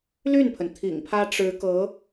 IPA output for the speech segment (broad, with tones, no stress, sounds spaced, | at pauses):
l y˥˩ n pʰ ə˩ n t̪ʰ ḭ˨˩ ŋ pʰ ä˥ ʈ͡ʂ ɻ̩˧˥ k ɤ˧˥